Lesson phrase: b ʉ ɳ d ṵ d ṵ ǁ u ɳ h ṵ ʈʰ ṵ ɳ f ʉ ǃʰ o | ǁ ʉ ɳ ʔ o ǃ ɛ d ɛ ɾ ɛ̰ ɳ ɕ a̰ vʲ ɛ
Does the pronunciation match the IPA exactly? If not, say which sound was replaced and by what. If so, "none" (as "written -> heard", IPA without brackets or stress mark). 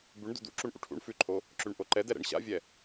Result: h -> ʔ